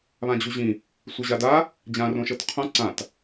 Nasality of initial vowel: nasal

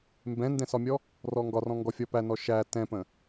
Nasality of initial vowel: nasal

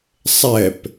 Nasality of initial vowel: oral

